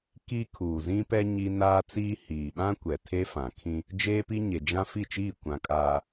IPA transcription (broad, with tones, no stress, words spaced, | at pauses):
ki˦ kʰuː˨zĩ˦pɛ˦ ɲi˦ naː˦t͡siː˦ hiː˨ɓã˦kʷɛ˨ tʰe˦fã˨kʰĩ˦ | d͡ʒeː˦pi˦ɲe˨ d͡ʒã˦ fi˦˨t͡ʃiː˦˨ kʷã˨kʼaː˨